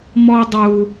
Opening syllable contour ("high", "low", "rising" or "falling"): low